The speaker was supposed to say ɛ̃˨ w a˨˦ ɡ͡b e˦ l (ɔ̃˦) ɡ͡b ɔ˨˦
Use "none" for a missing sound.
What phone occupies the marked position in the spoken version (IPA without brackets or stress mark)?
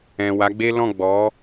ɔ̃˦˨